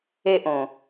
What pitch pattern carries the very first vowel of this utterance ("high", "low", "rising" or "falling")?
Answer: high